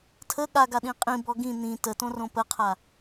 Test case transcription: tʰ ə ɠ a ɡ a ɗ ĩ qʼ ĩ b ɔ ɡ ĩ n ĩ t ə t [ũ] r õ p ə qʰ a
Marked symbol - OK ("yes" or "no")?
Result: no